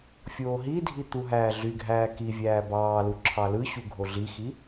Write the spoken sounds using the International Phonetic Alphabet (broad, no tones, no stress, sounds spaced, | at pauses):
fʲ oː ɦ i dʱ i t̪ u ɦ æː ɮ y ɡʱ æː k i vʲ æː b ɑː l u ǁʰ ɑ l ɯ ɕ u ɡʱ o ɮ i x i